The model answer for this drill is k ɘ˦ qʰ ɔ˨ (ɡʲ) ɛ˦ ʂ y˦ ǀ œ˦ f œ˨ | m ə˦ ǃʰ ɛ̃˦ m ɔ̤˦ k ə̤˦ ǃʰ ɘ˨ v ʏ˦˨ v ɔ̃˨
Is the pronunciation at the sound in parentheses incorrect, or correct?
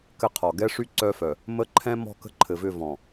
incorrect